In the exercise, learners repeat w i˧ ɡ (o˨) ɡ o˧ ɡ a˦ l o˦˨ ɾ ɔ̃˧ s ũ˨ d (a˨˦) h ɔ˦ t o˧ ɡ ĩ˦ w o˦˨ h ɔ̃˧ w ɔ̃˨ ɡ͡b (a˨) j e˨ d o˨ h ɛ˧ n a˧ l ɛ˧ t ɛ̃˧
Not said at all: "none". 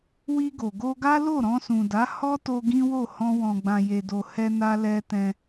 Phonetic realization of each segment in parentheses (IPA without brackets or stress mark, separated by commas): o˨, a˨˦, ã˨